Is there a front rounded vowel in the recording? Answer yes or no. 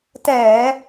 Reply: no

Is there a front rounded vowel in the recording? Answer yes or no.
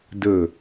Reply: no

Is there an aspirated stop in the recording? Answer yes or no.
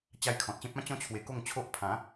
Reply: yes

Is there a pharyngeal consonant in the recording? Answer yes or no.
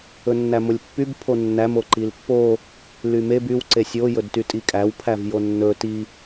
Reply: no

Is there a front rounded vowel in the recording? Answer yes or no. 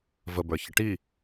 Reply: no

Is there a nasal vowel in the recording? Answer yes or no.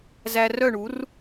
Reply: no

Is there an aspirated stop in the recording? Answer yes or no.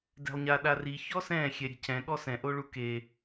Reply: no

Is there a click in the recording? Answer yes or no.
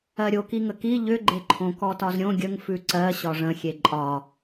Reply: yes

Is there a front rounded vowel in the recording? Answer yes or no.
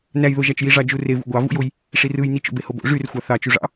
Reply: yes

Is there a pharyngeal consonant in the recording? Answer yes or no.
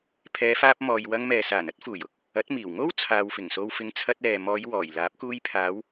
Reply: no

